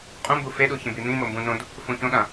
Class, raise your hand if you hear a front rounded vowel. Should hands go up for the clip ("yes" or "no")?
no